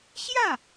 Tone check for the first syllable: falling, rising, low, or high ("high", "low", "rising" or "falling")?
falling